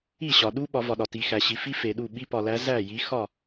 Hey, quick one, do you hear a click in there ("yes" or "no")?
no